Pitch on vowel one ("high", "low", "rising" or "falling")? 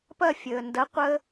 falling